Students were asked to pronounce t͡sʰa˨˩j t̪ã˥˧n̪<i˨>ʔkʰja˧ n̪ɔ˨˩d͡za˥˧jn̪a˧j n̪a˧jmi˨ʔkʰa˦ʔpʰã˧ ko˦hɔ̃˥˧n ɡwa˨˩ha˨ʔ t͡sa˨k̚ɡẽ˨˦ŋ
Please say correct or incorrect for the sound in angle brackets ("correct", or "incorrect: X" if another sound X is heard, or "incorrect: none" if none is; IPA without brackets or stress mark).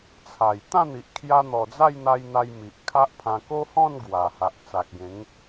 correct